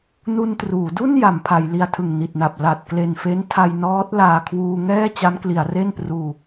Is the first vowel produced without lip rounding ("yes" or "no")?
no